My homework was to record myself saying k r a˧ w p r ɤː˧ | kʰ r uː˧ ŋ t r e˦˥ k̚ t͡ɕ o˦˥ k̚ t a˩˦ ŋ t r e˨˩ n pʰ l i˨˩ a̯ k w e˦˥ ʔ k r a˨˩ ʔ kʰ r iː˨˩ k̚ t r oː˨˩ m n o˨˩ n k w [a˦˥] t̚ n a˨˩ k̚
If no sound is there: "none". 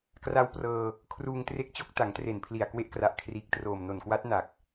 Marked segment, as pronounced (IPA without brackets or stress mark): a˦˥